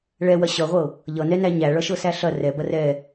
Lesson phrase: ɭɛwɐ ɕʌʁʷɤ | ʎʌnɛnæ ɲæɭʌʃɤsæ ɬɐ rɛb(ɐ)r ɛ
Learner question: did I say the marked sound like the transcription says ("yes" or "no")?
yes